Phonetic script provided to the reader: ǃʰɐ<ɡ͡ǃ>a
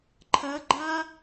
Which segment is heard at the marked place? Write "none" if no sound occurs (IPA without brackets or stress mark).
ɡ͡ǃ